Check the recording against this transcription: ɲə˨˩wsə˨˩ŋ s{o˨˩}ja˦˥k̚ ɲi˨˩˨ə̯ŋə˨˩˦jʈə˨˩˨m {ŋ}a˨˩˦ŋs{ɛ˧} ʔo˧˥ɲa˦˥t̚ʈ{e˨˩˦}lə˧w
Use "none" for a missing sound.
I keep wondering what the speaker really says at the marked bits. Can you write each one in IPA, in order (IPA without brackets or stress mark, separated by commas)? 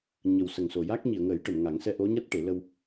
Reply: o˨˩, ŋ, ɛ˧, e˨˩˦